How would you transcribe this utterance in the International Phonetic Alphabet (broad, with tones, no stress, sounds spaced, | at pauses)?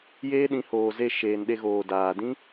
j eː˦ ɗ ĩ˨˦ h oː˨ z e˦˨ ʃ eː˨ n ɗ e˧ ɣ oː˨ d aː˨ d ĩ˦